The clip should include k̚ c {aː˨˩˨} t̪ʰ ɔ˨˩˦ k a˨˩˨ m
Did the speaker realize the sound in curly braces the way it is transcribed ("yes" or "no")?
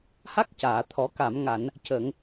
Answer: yes